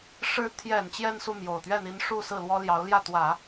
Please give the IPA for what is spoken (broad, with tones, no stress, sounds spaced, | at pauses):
ʂ ɻ̩˧˥ t̪ʰ j ɛ˨˩ n t͡ɕ j ɛ˥˧ n s u˥˩ m j o˨˩ ʊ̯ t̪ ɥ ɛ˥˩ n̪ i˧˥ n ʂ u˥˧ s ɹ̩˥˩ l w ɔ˥ l j ɑ˧˥ ʊ̯ l j ä˥˩ t̪ w ä˨˩˦